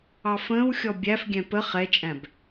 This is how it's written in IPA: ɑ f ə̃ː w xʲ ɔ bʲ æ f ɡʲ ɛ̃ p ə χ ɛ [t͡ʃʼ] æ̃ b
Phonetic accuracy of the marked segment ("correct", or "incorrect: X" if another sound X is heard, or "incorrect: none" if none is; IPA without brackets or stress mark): correct